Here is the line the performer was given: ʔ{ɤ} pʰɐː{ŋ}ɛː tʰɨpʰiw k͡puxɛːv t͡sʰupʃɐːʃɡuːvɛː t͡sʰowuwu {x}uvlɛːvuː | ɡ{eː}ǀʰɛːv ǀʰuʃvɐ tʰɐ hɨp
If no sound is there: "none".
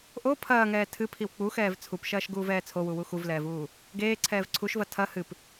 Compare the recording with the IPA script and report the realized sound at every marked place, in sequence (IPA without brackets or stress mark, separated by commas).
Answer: o, ŋ, x, eː